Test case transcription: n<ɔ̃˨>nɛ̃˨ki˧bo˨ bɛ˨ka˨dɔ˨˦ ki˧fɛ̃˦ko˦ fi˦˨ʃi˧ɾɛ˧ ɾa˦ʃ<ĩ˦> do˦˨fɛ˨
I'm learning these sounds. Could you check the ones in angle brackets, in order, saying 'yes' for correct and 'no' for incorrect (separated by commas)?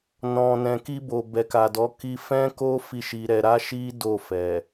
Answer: yes, no